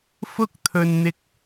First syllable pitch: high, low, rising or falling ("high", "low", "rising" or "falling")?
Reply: high